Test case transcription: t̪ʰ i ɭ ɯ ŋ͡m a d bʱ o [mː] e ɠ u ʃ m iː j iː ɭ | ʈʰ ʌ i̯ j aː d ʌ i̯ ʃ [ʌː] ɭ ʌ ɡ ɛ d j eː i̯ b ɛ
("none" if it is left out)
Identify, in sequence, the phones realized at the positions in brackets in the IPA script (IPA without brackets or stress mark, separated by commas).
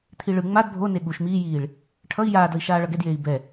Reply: n, aː